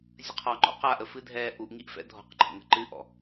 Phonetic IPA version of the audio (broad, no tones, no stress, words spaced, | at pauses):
zʲəqʰɔŋ͡ǃɔ̰ qaʔəfɨdʱɛː ʔuʔŋiʔ fɛ̰dʱɔ̤qǃʰə̰ŋə̤ ǃɨʔɔ̰